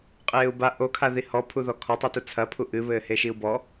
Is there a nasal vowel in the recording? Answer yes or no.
no